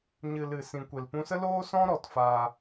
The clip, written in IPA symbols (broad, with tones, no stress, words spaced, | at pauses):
ɲɨ˨ lɨ˨sĩ˨ kʷe˨lpũ˧sə˦loː˦ sɔ̃˦ɾɔ˨tfaː˧